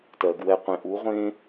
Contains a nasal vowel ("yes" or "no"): yes